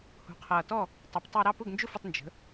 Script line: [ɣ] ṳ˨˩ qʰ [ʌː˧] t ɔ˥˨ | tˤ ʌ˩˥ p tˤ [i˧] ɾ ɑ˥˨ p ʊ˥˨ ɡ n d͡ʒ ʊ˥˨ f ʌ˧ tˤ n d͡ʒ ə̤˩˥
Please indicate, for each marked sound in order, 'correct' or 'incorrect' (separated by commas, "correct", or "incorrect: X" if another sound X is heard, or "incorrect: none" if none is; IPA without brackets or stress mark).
incorrect: h, incorrect: ʌː˨˩, correct